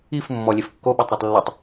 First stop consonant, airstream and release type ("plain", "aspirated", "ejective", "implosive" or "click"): plain